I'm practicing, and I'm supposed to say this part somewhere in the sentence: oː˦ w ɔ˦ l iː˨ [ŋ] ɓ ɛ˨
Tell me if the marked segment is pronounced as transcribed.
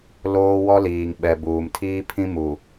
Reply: yes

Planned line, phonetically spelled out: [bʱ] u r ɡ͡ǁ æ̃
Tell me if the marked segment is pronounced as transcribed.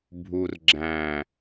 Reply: yes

